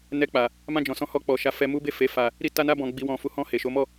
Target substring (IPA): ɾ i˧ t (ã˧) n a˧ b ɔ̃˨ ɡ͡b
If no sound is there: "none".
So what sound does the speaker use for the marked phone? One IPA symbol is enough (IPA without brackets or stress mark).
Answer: a˧